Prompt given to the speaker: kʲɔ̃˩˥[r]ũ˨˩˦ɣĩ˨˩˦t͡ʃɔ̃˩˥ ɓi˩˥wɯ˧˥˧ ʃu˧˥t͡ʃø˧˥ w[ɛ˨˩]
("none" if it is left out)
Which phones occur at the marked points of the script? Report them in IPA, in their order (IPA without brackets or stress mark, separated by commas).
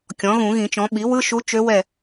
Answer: ɣ, ɛ˦˨